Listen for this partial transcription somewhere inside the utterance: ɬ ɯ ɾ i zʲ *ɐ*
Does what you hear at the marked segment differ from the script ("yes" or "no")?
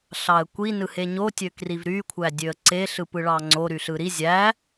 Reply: yes